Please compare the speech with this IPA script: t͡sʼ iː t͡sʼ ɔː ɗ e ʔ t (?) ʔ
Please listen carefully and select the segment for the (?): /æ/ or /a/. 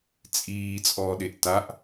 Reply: a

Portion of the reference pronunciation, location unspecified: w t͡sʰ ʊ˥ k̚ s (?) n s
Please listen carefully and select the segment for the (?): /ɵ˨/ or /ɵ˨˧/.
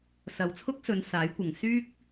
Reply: ɵ˨˧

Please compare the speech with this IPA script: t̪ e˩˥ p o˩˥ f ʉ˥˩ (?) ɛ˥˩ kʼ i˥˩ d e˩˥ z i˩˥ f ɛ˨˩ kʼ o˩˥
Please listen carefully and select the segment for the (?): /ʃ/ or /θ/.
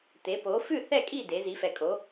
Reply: θ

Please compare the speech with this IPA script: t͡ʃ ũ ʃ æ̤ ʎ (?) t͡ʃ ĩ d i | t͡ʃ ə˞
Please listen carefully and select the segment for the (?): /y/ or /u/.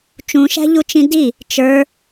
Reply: u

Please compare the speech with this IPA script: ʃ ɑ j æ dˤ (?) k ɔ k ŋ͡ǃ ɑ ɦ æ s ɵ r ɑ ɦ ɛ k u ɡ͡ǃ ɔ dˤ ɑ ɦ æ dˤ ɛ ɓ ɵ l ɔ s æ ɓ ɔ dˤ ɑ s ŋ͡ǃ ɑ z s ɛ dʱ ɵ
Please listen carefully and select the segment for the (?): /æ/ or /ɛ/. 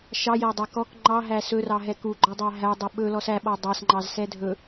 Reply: æ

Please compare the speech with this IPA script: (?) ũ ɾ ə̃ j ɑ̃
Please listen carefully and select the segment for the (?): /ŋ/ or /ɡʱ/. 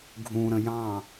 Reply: ɡʱ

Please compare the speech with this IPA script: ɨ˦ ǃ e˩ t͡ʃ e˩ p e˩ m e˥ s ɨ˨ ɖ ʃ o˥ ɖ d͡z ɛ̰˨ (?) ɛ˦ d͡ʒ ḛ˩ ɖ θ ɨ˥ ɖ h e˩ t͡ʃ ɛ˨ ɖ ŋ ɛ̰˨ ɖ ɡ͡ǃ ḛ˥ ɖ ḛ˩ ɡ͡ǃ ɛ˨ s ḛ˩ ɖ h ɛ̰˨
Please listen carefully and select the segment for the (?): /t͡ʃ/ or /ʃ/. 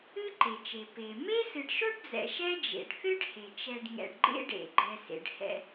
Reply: ʃ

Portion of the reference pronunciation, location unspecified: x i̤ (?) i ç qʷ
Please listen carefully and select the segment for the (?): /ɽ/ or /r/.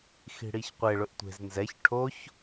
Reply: ɽ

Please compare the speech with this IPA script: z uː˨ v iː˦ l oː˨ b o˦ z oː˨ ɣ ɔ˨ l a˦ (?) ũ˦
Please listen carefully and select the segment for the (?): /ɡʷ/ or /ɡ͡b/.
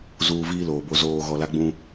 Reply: ɡ͡b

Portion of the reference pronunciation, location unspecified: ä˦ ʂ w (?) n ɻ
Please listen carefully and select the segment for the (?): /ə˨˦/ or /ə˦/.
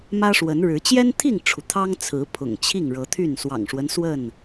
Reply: ə˨˦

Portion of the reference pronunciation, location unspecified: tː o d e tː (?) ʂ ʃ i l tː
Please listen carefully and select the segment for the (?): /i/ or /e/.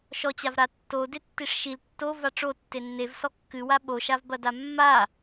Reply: i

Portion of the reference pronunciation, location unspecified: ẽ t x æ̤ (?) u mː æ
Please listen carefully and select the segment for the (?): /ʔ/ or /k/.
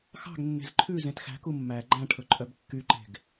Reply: k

